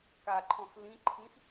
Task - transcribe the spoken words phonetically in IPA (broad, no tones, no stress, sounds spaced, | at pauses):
k a ǃʰ ɔ̃ x l ĩ ǃʰ ĩ x